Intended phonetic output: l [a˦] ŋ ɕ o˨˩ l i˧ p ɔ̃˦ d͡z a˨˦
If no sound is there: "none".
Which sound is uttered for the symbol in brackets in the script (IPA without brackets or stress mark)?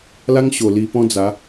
a˦